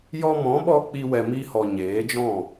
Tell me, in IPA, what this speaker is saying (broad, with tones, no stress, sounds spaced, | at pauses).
j ɔ˧ m ɔ̃˨˦ ɓ ɔ˧ k͡p i˧ w ɛ˨ m i˧ h ɔ˨ ɲ eː˨˦ d͡ʒ ɔ̃˦˨